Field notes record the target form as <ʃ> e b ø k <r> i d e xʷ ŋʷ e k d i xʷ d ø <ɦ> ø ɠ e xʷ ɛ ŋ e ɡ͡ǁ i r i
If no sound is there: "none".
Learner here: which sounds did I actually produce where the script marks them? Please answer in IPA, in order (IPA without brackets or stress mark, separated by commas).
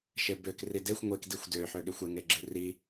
ʃ, r, ħ